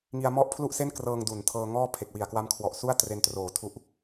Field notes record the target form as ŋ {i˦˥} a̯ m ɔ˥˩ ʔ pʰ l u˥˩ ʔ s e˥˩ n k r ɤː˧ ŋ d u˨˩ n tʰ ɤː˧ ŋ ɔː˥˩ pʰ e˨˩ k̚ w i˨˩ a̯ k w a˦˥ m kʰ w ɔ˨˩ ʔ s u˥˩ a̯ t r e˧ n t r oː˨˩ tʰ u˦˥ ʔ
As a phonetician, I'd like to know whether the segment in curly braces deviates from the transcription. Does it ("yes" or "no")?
yes